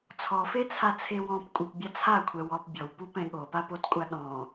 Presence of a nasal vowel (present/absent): present